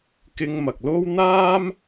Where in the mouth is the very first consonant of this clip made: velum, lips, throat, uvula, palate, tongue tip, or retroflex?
velum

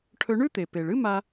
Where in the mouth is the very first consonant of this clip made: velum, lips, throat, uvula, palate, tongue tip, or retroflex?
retroflex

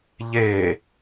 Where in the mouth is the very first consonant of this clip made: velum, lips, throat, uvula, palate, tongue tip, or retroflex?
palate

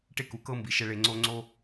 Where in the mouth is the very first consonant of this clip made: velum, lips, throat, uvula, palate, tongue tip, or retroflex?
retroflex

